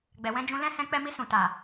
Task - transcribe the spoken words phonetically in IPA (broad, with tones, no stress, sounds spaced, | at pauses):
ɡ͡b ɛ˨ w ɛ̃˧ d͡ʒ ũ˧ l ɛ̃˦ h ɛ̃˧ k͡p ɛ˧ m i˧ s ũ˨ t a˨